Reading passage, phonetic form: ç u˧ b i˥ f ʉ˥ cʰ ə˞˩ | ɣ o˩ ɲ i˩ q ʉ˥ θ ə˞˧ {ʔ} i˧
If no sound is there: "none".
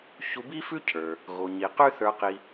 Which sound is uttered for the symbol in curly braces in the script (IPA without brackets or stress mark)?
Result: q